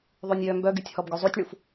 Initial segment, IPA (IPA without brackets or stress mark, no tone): ðˤ